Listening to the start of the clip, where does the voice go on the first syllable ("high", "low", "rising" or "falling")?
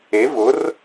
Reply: rising